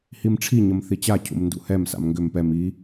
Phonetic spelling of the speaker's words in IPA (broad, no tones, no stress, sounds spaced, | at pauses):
h i m ʈ͡ʂʰ i ɲ ə m θ i t͡ɕ a cʰ ṵ m n d ṵ h ɛ m s a̰ m ŋ ɡ ʏ m p ɛ m i